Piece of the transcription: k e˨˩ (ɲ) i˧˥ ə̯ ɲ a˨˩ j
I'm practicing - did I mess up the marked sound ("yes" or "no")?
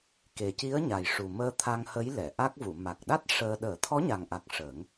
yes